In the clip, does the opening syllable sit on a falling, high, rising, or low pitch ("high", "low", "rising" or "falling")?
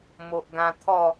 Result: low